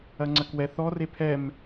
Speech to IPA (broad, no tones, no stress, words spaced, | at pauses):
ɐŋ͡ǀɐkwɛ θɔre pʰɛm